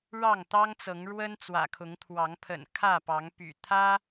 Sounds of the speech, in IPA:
ɻ ɑ˥˨ ŋ t̪ ɑ˦ ŋ t͡s ɤ˨˦ ŋ ɻ w ə˦ n t͡s w ä̰˨˩ kʰ ʊ˨˦ ŋ t̪ʰ w ɑ˨˦ ŋ pʰ ə̰˨˩ n kʰ ä˥˨ p ɑ˨˦ ŋ p y̰˨˩ t̪ʰ ä˦

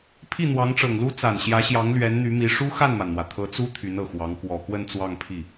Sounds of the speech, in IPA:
pʰ i˥˩ n̪ w ɑ˧˥ ŋ ʈ͡ʂ ɤ˨˩ ŋ l u˥ t͡s a˨˩ n ɕ j ä˧˥ ɕ j ɑ˧˥ ŋ l ɥ ɛ˧˥ n n̪ y˧˥ m i˧˥ ʂ u˥ x a˥˩ n m a˩ n n̪ w ä˩ t̪ʰ ɤ˧˥ t͡s u˥ t̪ʰ y˧˥ n ɤ˨˩ x w ɑ˧˥ ŋ k w ɔ˨˩ k w ə˥˧ n t͡s w ɑ˥˧ ŋ pʰ i˥˩

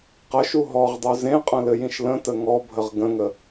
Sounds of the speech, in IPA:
q ə ʃ u ɦ ɔ ʁ dˤ u z ẽ qʼ ə̃ l ɘ j ĩ ʃ l ə̃ t ə ŋ ɔ bʱ ə ʁ ɡ ə̃ ŋ ə

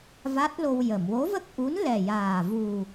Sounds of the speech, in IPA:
v a˦˥ t̚ l o˧ w j ə˨˩˨ m w o˧˥ v ə˦˥ k̚ ʔ u˧˥ n l ɛ˨˩ j aː˨˩ v u˨˩

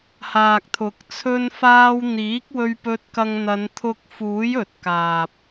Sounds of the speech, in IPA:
h aː˨ k̚ t̪ʰ ʊ˨˥ k̚ t͡sʰ ɵ˧ n f aː˧ w n̪ iː˨˥ k̚ w ɵ˧ ɥ p ɵ˧ t̚ k ɐ˧ ŋ n̪ ɐ˨˧ n t̪ʰ ʊ˧ k̚ f uː˨˥ j ɵ˨ t̚ k aː˨ p̚

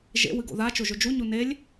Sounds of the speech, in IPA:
ʒ ḛ w ɨ ɡ o̰ ð a t͡ʃ o ʒ ɵ d͡ʒ u ɲ u n e lʲ

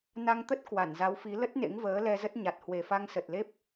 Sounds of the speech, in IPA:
n a˧ ŋ t̪ ə˦˥ t̚ k w a˧˩ n z a˨˦ w f i˨˦ l ə˦˥ t̚ n ḛ˧˥ ŋ v əː˨˦ l ɛ˧ z ə˦˥ t̚ ɲ a˨˩ t̚ h w e˨˩ f a˧ ŋ s ə˨˩ t̚ l e˦˥ p̚

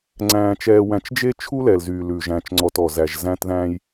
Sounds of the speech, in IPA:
ŋ͡ǀ æ̃ː˧ t͡ʃ ɛː˧ w æ̃˧ t͡ʃ d͡ʒ e˦ t͡ʃʰ u˦ l ɛ˨ l z yː˨ l ʉ˨ ʒ æ̃˨ t͡ʃ ŋ͡ǀ ɔ˨ t ɔ˨ z æ˨ ʒ z æ̃˧ t ð æ̃˧ j

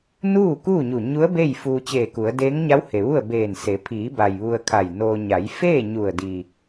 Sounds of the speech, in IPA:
n uː˥˨ k uː˥˨ ɲ u˧˩ ɲ u˧˥ ə̯ b e˥˨ j f uː˧ t͡ɕ eː˧˩ k u˩˧ ə̯ d eː˧˥ ŋ ɲ a˧˥ w h e˩ ʋ u˥˨ ə̯ b eː˧˩ n s e˩˧ pʰ iː˩˧ b a˩ j ʋ u˧ ə̯ kʰ a˧˩ j n oː˧ ɲ a˩˧ j f eː˥˨ ɲ u˧˩ ə̯ d iː˩

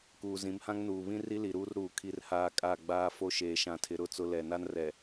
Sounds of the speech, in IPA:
k uː˨ z ĩ˨˦ m h ã˦ ŋ n uː˨ β ĩ˦ r i˦ l i˨ ɾ uː˦ r ɾ uː˨ kʰ i˨ r h aː˨ kʼ a˦˨ ɡ͡b aː˨ f o˦ ʃ eː˨ ʃ ã˨ tʰ ɪ˨ ɾ ʊ˦˨ t͡s ʊ˨ l ɛ˨ n a˦ n r ɛ˨

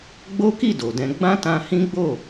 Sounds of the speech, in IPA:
ɡ͡b o˦ k i˦˨ d o˨ d ɛ̃˧ ɡ͡b ã˦ t ã˧ h ĩ˦ ɡ͡b o˦˨

